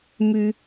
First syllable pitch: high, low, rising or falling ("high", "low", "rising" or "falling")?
high